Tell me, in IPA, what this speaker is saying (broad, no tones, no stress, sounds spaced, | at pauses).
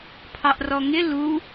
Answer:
pʰ ɑ ʔ r ɔ ŋ ɪ l u